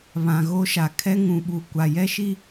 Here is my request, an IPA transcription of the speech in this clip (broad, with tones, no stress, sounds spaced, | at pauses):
β ã˨ ɣ o˦ ʃ a˨ kʰ ɛ˦ ŋ ũ˨ ɓ u˨ kʷ a˨ j ɛ˦ ʃ i˦